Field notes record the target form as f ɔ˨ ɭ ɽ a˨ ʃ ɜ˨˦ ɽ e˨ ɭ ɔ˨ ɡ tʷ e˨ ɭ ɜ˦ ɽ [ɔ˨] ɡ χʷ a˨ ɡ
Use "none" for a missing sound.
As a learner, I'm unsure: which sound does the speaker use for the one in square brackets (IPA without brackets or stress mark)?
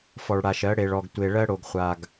o˨